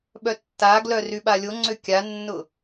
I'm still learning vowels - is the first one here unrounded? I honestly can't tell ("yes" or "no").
no